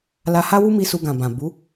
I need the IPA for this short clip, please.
la˧ha˦wu˦mi˧ su˧ɡã˨bã˨bu˨˦

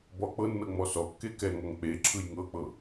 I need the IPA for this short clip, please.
bɔ k͡pɤnːɤ ŋ͡mɔsɔkːe kɛŋɔŋ k͡pe ǁʰɯjŋɤk͡pɤ

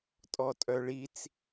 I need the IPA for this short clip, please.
tʼɔtʼœɭit͡s

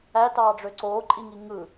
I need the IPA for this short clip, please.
ætɑːɖ͡ʐø ǀoːǃʼiŋi ŋɯ

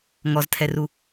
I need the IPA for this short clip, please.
ŋɔztʰɛru

